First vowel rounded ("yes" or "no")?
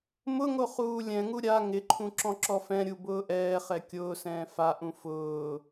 yes